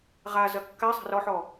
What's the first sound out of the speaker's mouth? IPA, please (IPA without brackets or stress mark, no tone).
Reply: ʁ